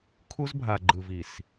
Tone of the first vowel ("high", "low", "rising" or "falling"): high